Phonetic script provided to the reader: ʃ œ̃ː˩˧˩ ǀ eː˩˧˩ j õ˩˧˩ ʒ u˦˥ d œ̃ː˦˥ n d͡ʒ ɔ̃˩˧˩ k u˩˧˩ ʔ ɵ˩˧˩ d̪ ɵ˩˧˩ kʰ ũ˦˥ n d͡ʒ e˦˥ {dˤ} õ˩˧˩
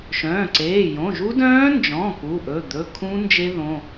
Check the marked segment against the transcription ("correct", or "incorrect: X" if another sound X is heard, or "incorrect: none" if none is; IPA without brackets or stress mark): incorrect: ð